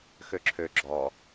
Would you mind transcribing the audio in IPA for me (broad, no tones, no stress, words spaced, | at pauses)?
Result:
xøǁʰø ɡ͡ǁɔ